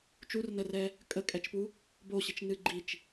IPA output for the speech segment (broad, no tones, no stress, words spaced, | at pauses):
t͡ʃurnərɛ | kʼəkʼɛt͡ʃpu | boɕit͡ʃnɨ ɡ͡ǃit͡ʃ